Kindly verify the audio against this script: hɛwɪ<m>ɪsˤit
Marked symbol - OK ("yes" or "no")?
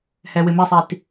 yes